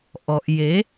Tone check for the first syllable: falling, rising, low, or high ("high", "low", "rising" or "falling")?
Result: low